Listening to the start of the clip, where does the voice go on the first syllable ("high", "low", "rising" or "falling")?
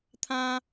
high